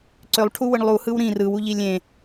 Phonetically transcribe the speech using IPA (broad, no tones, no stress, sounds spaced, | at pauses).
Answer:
ǀ ø lˠ ʈʰ u w ɯ ɳ lˠ u h ɯ w ɾ ĩ r ɯ w u ʎ i lʲ ẽ